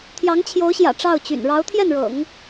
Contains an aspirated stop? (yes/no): yes